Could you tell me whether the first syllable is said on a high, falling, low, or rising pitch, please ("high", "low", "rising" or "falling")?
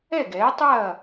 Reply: falling